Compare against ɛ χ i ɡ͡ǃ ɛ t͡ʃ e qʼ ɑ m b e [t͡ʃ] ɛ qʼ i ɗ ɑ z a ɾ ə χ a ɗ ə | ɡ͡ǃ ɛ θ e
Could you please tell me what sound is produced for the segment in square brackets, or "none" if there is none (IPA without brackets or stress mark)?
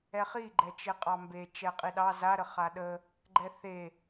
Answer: t͡ʃ